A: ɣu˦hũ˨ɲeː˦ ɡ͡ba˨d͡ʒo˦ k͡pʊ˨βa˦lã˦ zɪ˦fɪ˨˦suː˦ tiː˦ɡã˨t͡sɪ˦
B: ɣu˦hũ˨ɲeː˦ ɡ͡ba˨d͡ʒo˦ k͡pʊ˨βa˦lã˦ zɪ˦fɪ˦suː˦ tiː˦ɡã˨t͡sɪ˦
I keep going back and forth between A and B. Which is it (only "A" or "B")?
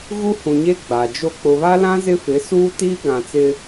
A